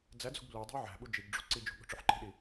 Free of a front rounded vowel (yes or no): yes